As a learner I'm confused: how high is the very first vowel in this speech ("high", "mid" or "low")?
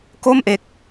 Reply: mid